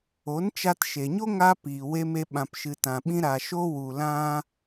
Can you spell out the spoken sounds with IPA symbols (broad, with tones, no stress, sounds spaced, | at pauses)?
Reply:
o˨˦ n t͡ʃ a˧ t ʃ e˨ ɲ o˦ ŋ a˧ p iː˨ w e˦ m e˦ ɓ ã˧ p ʃ ɨ˨ t ã˨ ɓ ĩ˧ ɾ a˨ ʃ o˧ w u˨ l ã˧